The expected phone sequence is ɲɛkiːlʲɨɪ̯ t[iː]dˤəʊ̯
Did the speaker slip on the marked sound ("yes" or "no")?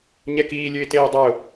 yes